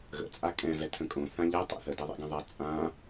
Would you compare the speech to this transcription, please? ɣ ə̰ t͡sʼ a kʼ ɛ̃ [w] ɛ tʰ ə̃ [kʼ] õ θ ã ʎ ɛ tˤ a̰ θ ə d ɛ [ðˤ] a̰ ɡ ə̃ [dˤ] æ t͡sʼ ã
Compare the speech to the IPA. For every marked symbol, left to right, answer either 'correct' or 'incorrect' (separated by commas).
incorrect, correct, correct, incorrect